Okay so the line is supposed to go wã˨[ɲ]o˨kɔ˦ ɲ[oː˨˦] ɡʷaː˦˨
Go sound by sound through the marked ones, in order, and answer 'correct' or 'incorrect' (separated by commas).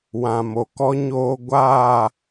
incorrect, incorrect